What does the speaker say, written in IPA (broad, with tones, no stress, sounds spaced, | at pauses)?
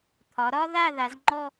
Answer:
t̪ʰ ɒ˩˧ ɾ ɒ˥ ð a˥˧ ð a˩˧ z ŋ͡ǃ ɔ˥˧